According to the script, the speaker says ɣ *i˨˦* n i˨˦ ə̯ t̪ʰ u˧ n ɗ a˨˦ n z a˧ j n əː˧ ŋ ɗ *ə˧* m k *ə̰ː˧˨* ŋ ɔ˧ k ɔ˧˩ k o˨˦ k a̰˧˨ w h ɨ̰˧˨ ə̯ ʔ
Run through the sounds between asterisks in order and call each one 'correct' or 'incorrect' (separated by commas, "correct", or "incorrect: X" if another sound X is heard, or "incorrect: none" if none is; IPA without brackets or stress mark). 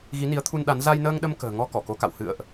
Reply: correct, correct, incorrect: ə̤ː˨˩